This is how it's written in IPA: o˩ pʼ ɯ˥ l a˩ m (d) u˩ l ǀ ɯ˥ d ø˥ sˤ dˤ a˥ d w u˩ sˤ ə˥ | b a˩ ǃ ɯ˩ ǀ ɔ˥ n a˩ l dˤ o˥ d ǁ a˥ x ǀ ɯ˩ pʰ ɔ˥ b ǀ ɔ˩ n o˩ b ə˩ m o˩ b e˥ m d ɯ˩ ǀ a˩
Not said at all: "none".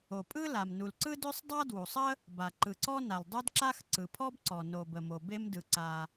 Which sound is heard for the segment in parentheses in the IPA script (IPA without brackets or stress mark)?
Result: n